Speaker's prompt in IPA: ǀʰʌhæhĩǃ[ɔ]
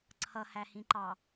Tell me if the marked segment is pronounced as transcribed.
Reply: no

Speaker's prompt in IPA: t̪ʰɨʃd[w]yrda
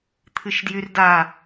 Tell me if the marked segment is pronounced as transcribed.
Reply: no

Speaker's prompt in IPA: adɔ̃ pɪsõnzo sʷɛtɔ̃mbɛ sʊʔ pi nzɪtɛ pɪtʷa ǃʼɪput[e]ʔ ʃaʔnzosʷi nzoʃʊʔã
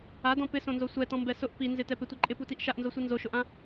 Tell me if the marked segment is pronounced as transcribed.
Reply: no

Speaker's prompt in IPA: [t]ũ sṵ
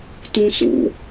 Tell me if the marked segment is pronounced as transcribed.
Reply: yes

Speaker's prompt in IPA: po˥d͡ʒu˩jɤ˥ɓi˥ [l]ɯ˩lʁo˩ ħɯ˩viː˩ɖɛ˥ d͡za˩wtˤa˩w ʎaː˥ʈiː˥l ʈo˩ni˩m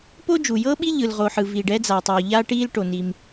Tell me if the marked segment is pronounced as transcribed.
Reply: no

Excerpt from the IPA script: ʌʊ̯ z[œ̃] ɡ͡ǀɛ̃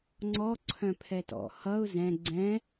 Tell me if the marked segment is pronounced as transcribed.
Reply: no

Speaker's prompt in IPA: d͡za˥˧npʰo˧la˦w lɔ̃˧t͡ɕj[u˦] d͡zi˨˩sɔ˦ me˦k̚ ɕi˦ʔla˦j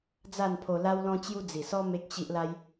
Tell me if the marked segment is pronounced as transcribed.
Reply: no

